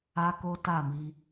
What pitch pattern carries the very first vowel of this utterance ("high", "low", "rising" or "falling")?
high